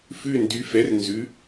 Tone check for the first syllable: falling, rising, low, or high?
falling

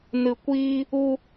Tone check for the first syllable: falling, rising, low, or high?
low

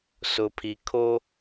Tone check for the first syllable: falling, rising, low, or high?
low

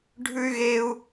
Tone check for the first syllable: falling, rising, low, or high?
high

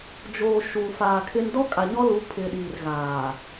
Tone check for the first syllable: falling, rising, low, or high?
low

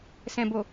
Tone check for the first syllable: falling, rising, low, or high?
low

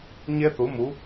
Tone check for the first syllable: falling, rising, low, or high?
high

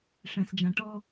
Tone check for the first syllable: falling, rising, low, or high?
low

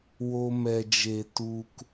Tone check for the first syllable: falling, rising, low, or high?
high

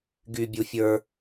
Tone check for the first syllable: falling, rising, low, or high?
low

